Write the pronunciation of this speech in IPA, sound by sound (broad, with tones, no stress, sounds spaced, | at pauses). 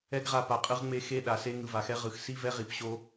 ɛ˦ ɡ ʁ a˧ p a˨ qʼ ɯ˧ ʁ ŋ͡m e˧ x e˦ ɗ a˨ s e˦ ŋ ɯ˨ v a˨ x ɛ˦ ʁ ɯ˨ x s i˦ v ɛ˦ ʁ i˧ p ɕ o˦